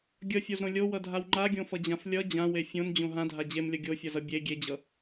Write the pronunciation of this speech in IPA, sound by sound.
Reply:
ɡʲ ʌ fʲ o z ɾ õ lʲ o w ʌ dʱ a w ŋ͡ǃ a ɡʲ õ f ʌ d͡ʑ ã f lʲ ʌ d͡ʑ ã w e fʲ õ n d͡ʑ õ ɦ ã dʱ a d͡ʑ e m lʲ ʌ ɡʲ o fʲ ʌ z ʌ bʲ e ɡʲ e d͡ʑ ʌ

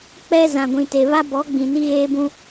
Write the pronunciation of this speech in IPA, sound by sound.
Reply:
k͡p ɛ˦ z ã˨ ɡʷ ĩ˨ t e˨ β a˦ b ɔ˨˦ ɡ͡b ĩ˨ n i˦ ɣ eː˦ b ũ˦

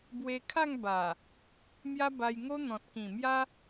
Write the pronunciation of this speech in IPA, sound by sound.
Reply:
b w e˧ kʰ a˥˧ ŋ b a˨˩ | m j a˦ b a˧ j ŋ o˦ n̪ ɔ̃˨ t̚ k ĩ˨˩ m j a˦

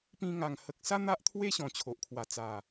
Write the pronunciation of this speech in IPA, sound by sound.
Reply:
p ĩ˧ ŋ a˨˩ ŋ h ə˨ k̚ s a˦ n̪ a˦ ʔ t̪ʰ w e˦ ɕ ɔ̃˨˩ t͡ɕʰ o˨ ʔ kʰ w a˨˩ t͡s a˨˩

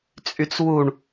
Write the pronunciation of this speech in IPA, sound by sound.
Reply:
t͡sʼ y t͡s w u ɳ

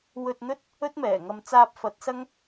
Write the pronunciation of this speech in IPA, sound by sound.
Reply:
w ɵ˧ t̚ n̪ ɵ˥ t̚ | ɵ˥ t̚ m ɛː˨˩ ŋ ɐ˧ m t͡s aː˧ p̚ f ɐ˨˥ t̚ s ɐ˥ ŋ

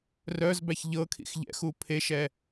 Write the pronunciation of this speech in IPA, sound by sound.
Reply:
r œ z b æ ç ʎ ɤ kʰ ḭ x ʎ ɛ̰ x u pʰ e ʃ ɛ

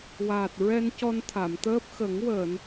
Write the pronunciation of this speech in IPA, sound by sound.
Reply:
w aː˨˩ t̚ ɹ ɛ˧ n c ɔ˧ n t̪ʰ a˨˩˨ m t̪ əː˦˥ p̚ x ə˨˩˦ ŋ w əː˨˩˨ n

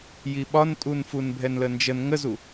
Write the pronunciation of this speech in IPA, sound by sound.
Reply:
j i ɓ ɒ n tʼ u n f u n bʱ ɛ n l ə n d͡ʒ ə n ŋ ə z u

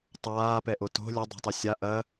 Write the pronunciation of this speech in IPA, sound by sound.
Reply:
tˤ aː p ɛ ʔ o t o̤ lʲ ɐ dˤ ɛ̤ tˤ o sʲ a ʔ ɐ

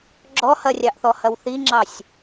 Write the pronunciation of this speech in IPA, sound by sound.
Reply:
ɡ͡ǁ ɔ h ɐ rʲ ɑ ʔ θ ɔ h ɐ w θ i ŋ͡ǁ ɑ sʲ

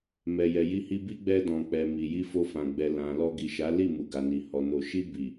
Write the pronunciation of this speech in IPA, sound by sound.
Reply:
m ɛ˨ j ɛ˨ j i˧ h i˧ b i˦ ɡ͡b ɛ˧ d ɔ̃˨ k͡p ɛ˨ m i˨ j i˧ f o˧ f ã˨ ɡ͡b ɛ˨ l ã˨ l ɔ˧ ɡ i˨ ʃ a˨˦ l i˦˨ m u˨ ɡ a˨ n i˨ h ɔ˨ n o˨ ʃ i˧ b i˨

